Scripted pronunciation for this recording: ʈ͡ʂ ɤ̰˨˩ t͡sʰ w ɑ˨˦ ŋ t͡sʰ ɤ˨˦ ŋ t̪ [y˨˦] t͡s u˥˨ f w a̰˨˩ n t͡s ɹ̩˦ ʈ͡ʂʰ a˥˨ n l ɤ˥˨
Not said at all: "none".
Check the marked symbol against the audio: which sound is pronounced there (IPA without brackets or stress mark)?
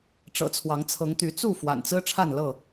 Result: y˨˦